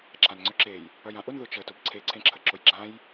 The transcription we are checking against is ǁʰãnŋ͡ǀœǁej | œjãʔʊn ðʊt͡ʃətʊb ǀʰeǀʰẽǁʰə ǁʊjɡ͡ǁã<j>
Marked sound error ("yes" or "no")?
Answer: no